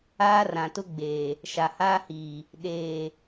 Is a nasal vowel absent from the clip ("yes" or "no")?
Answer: no